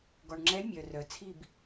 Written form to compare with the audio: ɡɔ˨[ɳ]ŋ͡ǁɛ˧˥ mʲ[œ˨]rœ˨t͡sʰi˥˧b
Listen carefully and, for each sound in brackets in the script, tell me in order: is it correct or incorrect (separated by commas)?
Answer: correct, correct